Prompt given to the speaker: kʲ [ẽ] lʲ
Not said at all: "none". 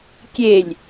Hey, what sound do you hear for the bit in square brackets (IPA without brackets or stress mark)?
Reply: e